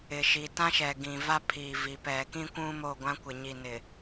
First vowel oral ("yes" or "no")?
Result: yes